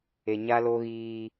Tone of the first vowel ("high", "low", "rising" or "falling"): low